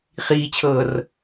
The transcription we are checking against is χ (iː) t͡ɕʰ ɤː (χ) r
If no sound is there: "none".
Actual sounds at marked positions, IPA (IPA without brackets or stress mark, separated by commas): iː, none